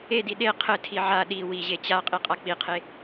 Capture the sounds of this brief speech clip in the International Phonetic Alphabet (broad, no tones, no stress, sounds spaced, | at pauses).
e d i ɗ e qʰ ɘ tʰ i ʕ a ɗ i w i ʑ e t͡ɕ a qʼ i qʼ a k͡p i qʰ e